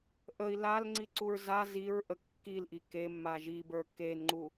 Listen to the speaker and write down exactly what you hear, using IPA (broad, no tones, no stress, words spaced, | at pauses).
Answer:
ʔəi̯ lalŋ͡ǀiǀuɹ za ziɹʔə kːilʔi kemːa ʒibə˞ kenŋ͡ǃu